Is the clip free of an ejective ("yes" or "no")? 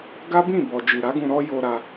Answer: yes